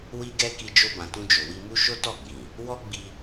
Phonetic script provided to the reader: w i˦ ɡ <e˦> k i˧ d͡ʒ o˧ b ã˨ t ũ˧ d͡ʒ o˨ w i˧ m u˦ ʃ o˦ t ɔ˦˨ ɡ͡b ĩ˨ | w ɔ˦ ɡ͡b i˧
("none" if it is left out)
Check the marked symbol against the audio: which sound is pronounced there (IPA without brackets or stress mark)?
ɛ˦